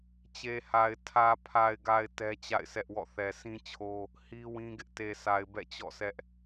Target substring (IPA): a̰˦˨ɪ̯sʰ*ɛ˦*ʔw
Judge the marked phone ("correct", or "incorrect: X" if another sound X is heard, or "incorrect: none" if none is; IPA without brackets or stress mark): correct